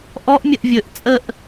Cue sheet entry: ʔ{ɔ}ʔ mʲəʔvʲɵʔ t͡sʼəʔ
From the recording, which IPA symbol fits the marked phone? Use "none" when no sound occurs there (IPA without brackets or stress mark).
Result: ɔ